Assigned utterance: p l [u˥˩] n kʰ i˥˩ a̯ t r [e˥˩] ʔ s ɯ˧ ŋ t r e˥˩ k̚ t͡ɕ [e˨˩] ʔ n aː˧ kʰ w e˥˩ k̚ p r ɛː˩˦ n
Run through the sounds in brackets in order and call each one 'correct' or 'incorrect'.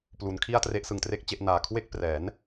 incorrect: u˩˦, incorrect: e˦˥, incorrect: e˥˩

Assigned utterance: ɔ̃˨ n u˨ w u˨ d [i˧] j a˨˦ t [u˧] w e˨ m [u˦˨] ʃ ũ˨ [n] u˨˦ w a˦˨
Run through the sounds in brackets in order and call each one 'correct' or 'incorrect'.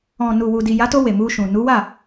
incorrect: i˨, incorrect: o˧, incorrect: u˧, correct

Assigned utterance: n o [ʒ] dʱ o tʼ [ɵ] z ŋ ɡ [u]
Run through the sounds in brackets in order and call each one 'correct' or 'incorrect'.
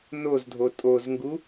incorrect: z, incorrect: o, correct

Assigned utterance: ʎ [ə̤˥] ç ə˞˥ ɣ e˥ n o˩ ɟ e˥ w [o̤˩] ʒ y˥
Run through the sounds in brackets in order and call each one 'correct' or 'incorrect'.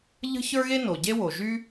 correct, incorrect: o˩

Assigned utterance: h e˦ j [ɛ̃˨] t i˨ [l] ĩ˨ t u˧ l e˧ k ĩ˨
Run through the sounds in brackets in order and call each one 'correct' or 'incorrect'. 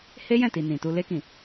incorrect: ɛ̃˦˨, incorrect: n

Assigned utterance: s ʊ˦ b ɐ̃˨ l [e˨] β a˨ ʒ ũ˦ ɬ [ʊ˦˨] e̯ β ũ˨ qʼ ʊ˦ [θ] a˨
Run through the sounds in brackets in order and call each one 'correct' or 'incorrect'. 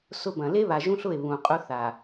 incorrect: e˦, correct, correct

